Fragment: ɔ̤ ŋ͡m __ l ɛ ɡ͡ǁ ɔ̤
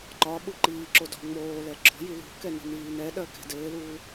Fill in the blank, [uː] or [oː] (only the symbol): oː